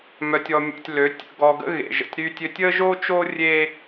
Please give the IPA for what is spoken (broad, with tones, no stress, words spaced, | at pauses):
mœ˧tʲɔ˧mʲɔ̰˧tʲ lø˨˦ tʲə̰˧ɡɔ˧ɡə̰˦ ɣḛ˨ʒə̰˨tʲɾyː˧tʲø˧tʲ əː˦ʒoː˦t͡ʃoː˦ rʲe˦